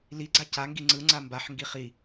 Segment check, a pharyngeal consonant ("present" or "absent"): present